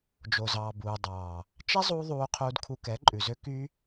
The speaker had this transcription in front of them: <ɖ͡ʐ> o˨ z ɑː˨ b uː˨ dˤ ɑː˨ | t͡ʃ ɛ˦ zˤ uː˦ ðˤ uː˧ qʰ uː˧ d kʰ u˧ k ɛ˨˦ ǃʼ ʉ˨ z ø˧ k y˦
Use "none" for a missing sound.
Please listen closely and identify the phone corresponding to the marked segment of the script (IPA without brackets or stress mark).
d͡ʒ